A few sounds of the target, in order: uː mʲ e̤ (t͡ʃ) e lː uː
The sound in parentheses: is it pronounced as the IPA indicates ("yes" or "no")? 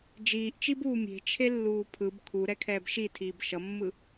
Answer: no